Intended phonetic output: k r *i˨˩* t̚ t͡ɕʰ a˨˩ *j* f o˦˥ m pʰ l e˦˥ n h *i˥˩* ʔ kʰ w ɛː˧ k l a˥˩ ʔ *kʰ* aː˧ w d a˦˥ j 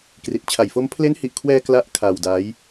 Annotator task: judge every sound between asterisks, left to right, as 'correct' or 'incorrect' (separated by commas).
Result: correct, correct, incorrect, correct